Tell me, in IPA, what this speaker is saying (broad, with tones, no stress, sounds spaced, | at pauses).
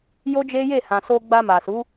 j o˦ d͡ʒ e˦ j e˦˨ h ã˨ s o˧ ɡ͡b a˧ m a˨ s u˨˦